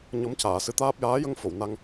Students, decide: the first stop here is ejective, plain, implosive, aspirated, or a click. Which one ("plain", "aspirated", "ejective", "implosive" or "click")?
plain